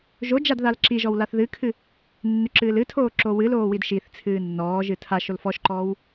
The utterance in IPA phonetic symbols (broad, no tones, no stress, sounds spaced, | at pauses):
ʒ o d͡ʒ a d ð a l ǁ i ʒ ɔ w l a θ ð ɨ kʰ ɨ | nː ʏ ǁ ɨː l ɨ tʰ oː ǁ o w ɨ l oː w i d ʃ i θ t͡sʰ ɨː nː ɔː ʒ ɨ tʰ a ʃ o l f ɔ ʃ ǃ ɔː w